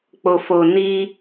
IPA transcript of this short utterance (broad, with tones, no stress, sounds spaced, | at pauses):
k͡p o˨ f o˨ n i˧